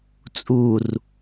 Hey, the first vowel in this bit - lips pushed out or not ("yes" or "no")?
yes